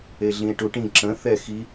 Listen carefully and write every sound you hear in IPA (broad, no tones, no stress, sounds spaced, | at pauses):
e ɮ ĩ e̯ ʈ u ʈ ĩ ǁ ə̃ θ ɛ x i